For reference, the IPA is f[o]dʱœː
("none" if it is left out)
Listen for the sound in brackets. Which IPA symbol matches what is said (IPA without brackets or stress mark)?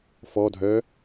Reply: ɔ